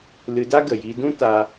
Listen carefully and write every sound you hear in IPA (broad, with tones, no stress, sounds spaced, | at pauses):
l ɨ˧ d a˦ ɡ ə˨ j i˧ d ũ˦ t a˧